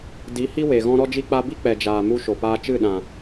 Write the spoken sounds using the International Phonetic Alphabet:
di˨˦hi˦ we˨ɣɔ̃˦ ɾɔ˧d͡ʒi˧k͡pa˧bi˦ k͡pɛ˨d͡ʒaː˨ mu˧ʃo˨paː˧ t͡ʃɨ˦˨ɗã˨

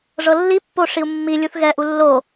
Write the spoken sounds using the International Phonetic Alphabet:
ʐɤlːipːo ʂiu̯mːilʲuθ ɣɛʔu lːo

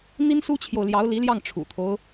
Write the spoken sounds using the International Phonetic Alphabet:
n̪i˥nsu˥t͡ɕʰjo˨ʊ̯ljɑ˧˥ʊ̯ li˧˥ljɑ˥˩ŋ ʈ͡ʂʰṵ˨˩t̪ʰo˦ʊ̯

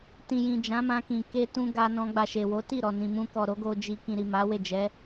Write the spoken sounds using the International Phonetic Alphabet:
tĩ˨jĩ˨ d͡ʒã˨˦mã˧kĩ˨ ke˧tũ˧ ɡa˧nɔ̃˧ɡ͡ba˨ ʃe˨wo˨˦ti˦˨ɾɔ˨ nĩ˨mũ˧kɔ˨ ɾo˨˦ɡo˧ d͡ʒi˧ kĩ˨ɾi˨ ma˨˦we˦˨d͡ʒɛ˨˦

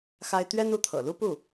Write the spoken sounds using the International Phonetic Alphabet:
xa˥ɪ̯ t̪ɥɛ˥nu˧˥t̪ʰɤ̰˨˩ lu˥˧pu˥˩

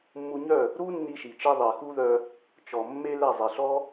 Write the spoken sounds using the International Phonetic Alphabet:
mːu˧ɲœ˦˨ | ɾu˦nːi˧ʃi˨t͡ʃi˧ ðˤe˨xu˦ðœ˧ | t͡ʃɔ˨ mːe˧ lɛ˦˨zˤe˨ɬɔ˦

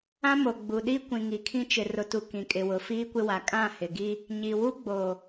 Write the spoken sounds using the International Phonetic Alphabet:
ã˦mo˨ɡ͡bu˨ ɗi˦kʷĩ˨ŋi˨kʰĩ˦ t͡ʃɪ˨rʊ˨tu˨ kĩ˨kʼɪ˨wʊ˨ fiː˦kʷɪ˦wa˨ kʼã˦˨hɪ˨ɡi˦ | ɲi˨wu˦ ɡ͡bo˨

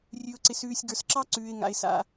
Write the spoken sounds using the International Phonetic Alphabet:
rʲʉ˨ʊ̯ǀɪ˨sʉː˨sʲ ɡə˞˨sǁɑ˦ ǀʉː˨ɪ̯ŋa̰˨ɪ̯ sa̰˨

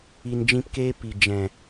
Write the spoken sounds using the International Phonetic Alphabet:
i˨nd͡ʒĩ˧pkeː˦ pi˨ d͡ʒɛ̃˨

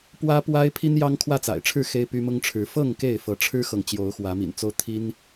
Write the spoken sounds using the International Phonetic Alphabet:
pwä˦pwa˦ɪ̯ pʰi˦njɑ˦ŋ kʰwä˥˨t͡sa̰˨˩ɪ̯ʈ͡ʂʰɻ̩˥˨ xe˦ɪ̯py˦mʊ˦ŋʈ͡ʂʰɻ̩˨˦ fɤ˥˨ŋ ke˥˨ɪ̯fɤ˨˦ʈ͡ʂʰɻ̩˦xɤ˨ŋ t͡ɕjo˨˦ʊ̯xwä˨˦mḭ˨˩nt͡so˦ʊ̯ t̪ʰi˦n

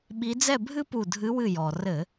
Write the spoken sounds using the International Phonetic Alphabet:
ɓi˨˦d͡zɛ˥˨bʱɨ˥pu˧˩ dʱɨ˨˦wɨ˧˩ jɔ˩ rɘ˧˩˧

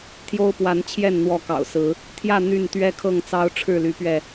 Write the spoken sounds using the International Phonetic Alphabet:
t̪ʰjo˦ʊ̯pwa˨˦n t͡ɕʰjɛ˥˨n n̪wɔ˥˨ kɑ̰˨˩ʊ̯sɹ̩˨˦ | t̪ʰjä˥˨ n̪y˥˨n t̪ɥɛ˦kʰɤ˥˨ŋt͡sɑ˦ʊ̯ ʈ͡ʂʰɻ̩˥˨ly˨˦pɥɛ˧

